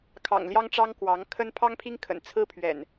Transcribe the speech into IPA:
kʰɑ̰˨˩ŋljɑ˦ŋʈ͡ʂɑ˦ŋ kwɑ˨˦ŋ kʰə˦n pʰɑ˦ŋpʰi˦ŋkʰə̰˨˩n t͡sʰɹ̩˦pʰɥɛ̰˨˩n

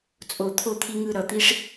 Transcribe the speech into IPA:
t͡sʼo˥˧ t̪ʰo˥˧t̪ʰi˦˥ŋɯ˥˧ ɾʌ˥˧ t̪i˦˥ʂ

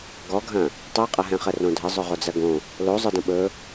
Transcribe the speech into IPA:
ɡɔɡʱɐ̃ | tˤɛqʼɐɦɛ̃χə rõdʱə zˤɵʁod͡zɐɡõ | lozˤə˞dɐ̃ ɓɵ

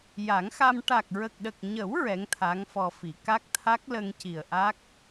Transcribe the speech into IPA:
ja˨˩˦ŋxa˧m ʈa˨˩k̚ɹə˨˩k̚ɗə˨˩k̚ɲə˨˩˦w ɹɛ˧˥ŋt̪ʰa˧˥ŋfɔ˧fi˨˩˦ ka˦˥k̚t̪ʰa˦˥k̚lə˧ŋ ci˨˩ə̯ʔa˦˥k̚

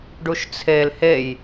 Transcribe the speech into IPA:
ɖuʃt͡sʰel hej

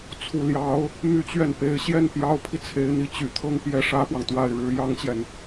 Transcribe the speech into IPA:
t͡sʰu˨˩ljɑ˧˥ʊ̯ | my˥˧t͡ɕɥɛ˥˩n pe˧˥ɪ̯ɕjɛ˥˩n pjɑ˧˥ʊ̯pʰi˧ t͡sʰe˧˥ɪ̯n̪i˧˥ t͡ɕy˨˩t̪ʰɤ˥˧ŋpjɛ˥˩ ʂä˥pwɑ˨ŋt̪wa˥˩ɪ̯ɻɻ̩˥ jɑ˥ŋt͡ɕjɛ˨n

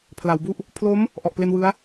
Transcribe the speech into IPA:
pʰla˩˦wbu˥˩ʔ | pʰlo˦˥m | ʔɔ˨˩ʔple˧nwɯ˦˥a̯

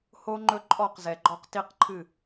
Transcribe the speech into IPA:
ho˦ ŋ͡ǃɵ˦ǃʼɔ˦˨qzɛ˨ɡ͡ǃɔ˦q ti˦qǃʰɨ˦˨

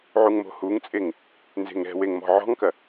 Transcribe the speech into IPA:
ʕuŋmo̤huŋt͡sʼeŋ | nze̤ŋɾɛ̤weŋ mɔ̤ʕɔ̤ŋkɐ

